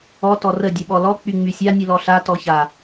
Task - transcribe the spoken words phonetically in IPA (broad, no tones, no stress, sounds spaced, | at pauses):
ɔ t ɔ r ə dʲ ə ɓ ɔ l ɔ k͡p y ŋ͡m y sʲ a nʲ ɨ l ɔ ɬ a t ɔ ç a